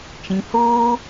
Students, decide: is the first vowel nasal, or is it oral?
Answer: nasal